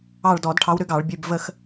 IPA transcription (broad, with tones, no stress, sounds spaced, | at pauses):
ɑ˦˨ ɭ d ɔ˧˩˧ d ʈʰ ɑ˨˦ w ɾ ʏ˨˦ ɡ ɑ˧˩˧ ɭ bʲ ʉ˩˧˩ b v ə˦˨ x